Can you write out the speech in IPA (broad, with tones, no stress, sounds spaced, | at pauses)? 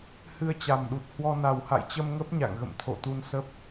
h ɨ˧ ə̯ t͡ɕ a˨˩ m ɗ u˨˩ t̚ h w ɔ˧ n a˨˩ w h a̰˧˨ j t͡ɕ ə˧ m ŋ ə˦˥ p̚ ɲ a̰˧˨ ŋ ɣ ə̰˧˨ m t̪ʰ o̰˧˨ t̪ u˧ n s ə˦˥ p̚